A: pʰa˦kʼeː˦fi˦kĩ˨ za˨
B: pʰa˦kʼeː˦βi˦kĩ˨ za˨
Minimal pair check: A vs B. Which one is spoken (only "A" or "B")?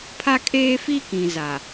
A